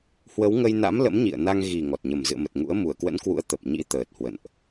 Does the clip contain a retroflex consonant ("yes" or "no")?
no